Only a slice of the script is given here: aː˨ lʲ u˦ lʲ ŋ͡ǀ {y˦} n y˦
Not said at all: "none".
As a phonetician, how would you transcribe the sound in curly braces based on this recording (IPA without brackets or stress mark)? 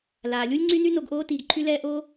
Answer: y˦